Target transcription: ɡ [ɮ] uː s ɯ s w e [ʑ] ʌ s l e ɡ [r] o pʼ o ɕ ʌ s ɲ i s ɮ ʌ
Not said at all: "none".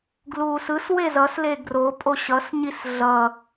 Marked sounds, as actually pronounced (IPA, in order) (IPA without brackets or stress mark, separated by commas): l, z, r